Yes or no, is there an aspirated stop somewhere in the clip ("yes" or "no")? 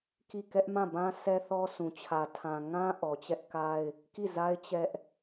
yes